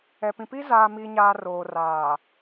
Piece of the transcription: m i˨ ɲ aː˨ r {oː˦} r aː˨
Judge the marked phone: incorrect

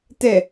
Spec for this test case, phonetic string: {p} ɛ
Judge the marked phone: incorrect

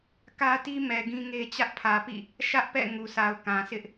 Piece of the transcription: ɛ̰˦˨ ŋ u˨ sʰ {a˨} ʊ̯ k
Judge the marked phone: correct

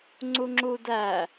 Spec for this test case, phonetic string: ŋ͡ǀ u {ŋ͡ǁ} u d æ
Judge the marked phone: correct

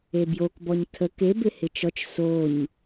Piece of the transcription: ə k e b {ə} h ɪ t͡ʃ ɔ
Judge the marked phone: incorrect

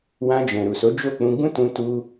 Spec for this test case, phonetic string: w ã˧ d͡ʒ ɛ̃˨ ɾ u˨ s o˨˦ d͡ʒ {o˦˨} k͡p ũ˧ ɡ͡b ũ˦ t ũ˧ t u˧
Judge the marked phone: correct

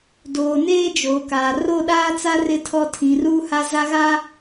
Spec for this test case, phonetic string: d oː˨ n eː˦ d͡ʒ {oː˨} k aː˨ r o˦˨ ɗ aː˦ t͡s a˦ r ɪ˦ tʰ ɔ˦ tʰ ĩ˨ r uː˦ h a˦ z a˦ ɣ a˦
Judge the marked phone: correct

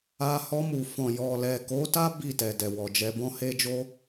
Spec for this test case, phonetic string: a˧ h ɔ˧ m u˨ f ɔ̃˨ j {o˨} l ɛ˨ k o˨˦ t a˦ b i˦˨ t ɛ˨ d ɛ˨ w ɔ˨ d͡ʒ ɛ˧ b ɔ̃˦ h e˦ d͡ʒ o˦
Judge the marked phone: incorrect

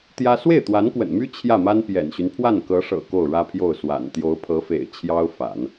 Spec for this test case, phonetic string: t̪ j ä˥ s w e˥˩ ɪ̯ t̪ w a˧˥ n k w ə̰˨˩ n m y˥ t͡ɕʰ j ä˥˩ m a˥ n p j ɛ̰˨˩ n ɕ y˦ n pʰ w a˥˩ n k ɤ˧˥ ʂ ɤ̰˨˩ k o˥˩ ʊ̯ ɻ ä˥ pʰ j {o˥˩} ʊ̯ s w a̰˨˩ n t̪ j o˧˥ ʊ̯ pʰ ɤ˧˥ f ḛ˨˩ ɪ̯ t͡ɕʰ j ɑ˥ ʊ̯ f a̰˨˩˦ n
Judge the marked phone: correct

